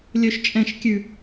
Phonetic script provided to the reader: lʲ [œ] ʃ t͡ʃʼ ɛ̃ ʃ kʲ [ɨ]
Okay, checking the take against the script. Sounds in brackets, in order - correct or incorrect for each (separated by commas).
correct, incorrect